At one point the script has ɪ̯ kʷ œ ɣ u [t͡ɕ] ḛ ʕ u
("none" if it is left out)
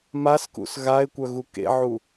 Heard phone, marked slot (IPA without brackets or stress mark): k